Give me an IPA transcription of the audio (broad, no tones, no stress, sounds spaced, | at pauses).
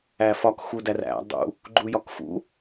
æ f ɒ k x u d æ r æ̰ dˤ ṵ | ɡ͡ǃ u j ɒ k f ṵ